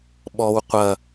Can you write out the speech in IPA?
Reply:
ɓɔw qʷɐ

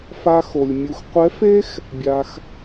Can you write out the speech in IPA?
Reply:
fa˥xo˧lʲ mʲu˧x qʷɛ˧˥fe˥x | bʲa˧x

